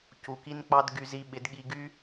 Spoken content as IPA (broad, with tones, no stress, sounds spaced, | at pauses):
c u˨ k i˧ n k͡p ɑ˧ d ɡ y˧ z i˧ ɓ ɪ˨˦ d ɠ i˧ ɡ y˦